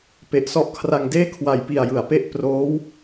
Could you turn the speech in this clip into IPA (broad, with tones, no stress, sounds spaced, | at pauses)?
p e˨˩ ʔ s ɔ˦˥ ʔ kʰ r a˧ ŋ d eː˥˩ kʰ w a˨˩ j p i˨˩ a̯ j ɯ˩˦ a̯ p e˦˥ ʔ p r oː˦˥ w